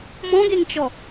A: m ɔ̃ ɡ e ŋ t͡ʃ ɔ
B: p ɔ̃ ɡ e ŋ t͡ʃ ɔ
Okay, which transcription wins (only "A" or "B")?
A